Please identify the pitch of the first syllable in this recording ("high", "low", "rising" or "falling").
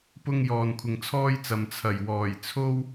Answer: high